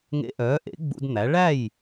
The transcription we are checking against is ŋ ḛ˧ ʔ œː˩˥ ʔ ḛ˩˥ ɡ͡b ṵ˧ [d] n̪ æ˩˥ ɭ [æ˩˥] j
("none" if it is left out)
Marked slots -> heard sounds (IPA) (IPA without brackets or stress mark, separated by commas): d, æ˥˩